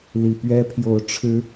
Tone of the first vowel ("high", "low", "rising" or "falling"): low